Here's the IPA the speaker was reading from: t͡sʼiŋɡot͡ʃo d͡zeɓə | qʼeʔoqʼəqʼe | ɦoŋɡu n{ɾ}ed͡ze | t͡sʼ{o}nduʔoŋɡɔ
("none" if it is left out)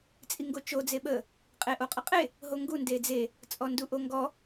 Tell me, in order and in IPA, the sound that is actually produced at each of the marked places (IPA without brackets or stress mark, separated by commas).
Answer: d, ɔ